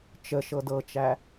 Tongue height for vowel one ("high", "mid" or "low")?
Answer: mid